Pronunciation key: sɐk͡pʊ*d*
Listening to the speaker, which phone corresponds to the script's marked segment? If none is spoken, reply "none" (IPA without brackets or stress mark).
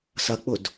d